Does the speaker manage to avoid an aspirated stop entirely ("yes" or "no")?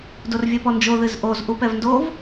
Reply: yes